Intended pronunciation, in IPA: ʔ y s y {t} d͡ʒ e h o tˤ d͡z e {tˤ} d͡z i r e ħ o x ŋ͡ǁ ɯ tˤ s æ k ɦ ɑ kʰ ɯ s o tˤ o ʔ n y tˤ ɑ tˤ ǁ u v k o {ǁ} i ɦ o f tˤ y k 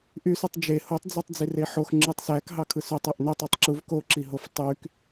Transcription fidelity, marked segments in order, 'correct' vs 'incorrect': incorrect, correct, correct

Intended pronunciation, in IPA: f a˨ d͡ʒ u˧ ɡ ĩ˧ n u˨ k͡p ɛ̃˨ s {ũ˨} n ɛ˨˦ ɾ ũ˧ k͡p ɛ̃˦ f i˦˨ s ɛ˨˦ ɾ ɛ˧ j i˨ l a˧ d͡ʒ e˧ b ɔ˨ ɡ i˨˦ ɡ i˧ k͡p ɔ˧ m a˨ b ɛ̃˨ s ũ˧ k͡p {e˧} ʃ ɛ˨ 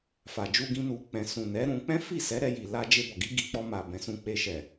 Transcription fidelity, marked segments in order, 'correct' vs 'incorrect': correct, correct

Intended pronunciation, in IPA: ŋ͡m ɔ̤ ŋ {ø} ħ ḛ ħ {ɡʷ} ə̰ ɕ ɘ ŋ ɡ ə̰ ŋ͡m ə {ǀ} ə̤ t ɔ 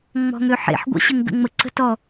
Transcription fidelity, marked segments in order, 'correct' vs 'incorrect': correct, correct, correct

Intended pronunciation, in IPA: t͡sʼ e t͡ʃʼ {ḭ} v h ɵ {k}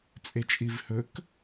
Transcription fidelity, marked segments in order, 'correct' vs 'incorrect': incorrect, correct

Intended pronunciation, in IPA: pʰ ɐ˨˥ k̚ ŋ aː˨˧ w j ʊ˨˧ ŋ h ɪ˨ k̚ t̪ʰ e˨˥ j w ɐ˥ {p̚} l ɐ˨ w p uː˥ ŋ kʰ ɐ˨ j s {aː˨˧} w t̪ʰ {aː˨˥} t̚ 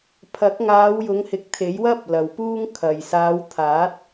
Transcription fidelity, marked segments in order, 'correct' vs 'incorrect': correct, correct, correct

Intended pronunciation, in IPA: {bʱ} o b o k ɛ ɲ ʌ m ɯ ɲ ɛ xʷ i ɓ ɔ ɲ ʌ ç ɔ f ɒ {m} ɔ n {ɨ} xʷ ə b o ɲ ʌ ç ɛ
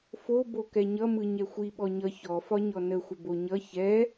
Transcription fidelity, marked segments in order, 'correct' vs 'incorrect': incorrect, incorrect, incorrect

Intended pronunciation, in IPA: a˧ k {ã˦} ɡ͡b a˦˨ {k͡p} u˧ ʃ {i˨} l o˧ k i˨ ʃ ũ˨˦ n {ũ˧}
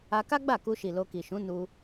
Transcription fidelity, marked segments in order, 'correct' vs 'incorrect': incorrect, incorrect, correct, incorrect

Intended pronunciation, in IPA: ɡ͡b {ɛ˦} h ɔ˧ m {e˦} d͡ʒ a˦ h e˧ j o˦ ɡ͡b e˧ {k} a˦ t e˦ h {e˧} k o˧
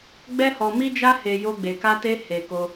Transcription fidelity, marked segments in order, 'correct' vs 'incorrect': correct, incorrect, correct, correct

